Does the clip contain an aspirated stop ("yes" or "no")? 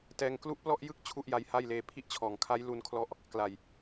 yes